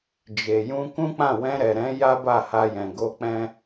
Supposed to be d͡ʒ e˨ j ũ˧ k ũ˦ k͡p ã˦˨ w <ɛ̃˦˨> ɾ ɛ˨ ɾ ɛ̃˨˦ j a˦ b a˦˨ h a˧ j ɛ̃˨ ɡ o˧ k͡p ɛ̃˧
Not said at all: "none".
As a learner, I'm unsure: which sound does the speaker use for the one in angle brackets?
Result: ɛ̃˧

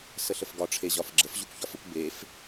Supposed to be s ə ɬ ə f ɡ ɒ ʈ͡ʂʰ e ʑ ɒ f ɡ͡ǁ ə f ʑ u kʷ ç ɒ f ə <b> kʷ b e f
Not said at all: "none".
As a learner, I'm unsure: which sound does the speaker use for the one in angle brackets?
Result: none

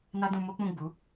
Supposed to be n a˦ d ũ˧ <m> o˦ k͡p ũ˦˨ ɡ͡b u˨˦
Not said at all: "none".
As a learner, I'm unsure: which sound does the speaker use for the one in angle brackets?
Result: m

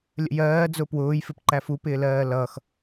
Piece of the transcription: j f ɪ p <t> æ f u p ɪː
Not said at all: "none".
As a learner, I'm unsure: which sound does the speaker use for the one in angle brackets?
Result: ǃ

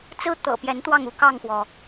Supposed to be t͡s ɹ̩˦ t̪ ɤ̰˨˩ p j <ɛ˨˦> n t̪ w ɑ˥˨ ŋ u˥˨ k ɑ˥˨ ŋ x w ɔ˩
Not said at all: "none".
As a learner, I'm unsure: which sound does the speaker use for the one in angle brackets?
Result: ɛ˨˦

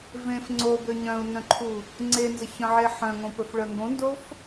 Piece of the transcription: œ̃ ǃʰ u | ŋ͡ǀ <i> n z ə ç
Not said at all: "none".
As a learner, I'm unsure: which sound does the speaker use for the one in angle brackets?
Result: e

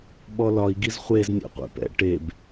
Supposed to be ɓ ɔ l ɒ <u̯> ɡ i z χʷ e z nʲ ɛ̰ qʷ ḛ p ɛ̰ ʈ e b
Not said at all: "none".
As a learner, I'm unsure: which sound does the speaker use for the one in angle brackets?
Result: i̯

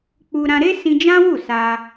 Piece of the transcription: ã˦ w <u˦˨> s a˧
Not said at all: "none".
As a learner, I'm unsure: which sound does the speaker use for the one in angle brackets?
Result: u˦˨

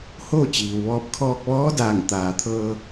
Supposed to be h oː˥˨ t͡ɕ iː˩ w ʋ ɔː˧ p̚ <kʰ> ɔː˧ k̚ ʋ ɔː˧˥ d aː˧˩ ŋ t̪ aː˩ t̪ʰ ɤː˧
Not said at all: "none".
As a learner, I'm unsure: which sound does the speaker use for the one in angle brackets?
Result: kʰ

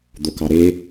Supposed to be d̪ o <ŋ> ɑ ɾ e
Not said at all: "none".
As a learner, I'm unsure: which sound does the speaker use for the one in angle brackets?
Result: k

